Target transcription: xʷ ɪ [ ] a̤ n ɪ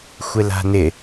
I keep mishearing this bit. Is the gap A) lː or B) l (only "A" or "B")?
B